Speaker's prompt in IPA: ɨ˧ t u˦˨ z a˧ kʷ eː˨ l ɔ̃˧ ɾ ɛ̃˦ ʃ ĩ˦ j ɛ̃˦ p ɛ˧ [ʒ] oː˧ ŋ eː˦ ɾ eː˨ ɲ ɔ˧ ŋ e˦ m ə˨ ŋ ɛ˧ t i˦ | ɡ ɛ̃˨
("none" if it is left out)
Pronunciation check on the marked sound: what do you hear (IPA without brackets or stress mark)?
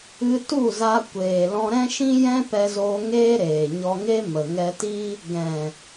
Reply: z